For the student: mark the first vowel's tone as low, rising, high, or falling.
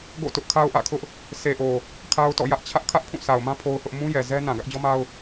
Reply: falling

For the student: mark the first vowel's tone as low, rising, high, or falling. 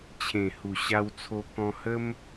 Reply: low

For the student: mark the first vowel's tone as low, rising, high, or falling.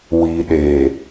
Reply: low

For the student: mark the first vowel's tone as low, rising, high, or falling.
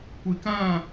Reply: low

